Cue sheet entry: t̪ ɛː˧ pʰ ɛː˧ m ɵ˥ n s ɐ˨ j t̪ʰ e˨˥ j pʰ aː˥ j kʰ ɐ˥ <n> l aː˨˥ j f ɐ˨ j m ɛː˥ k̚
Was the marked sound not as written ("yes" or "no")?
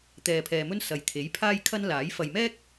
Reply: no